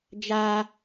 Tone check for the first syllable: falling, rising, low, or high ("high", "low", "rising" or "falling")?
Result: high